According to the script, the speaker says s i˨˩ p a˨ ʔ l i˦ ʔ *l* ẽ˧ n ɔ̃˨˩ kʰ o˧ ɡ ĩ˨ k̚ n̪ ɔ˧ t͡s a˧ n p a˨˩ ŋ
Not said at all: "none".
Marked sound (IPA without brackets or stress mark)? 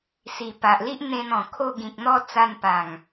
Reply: n̪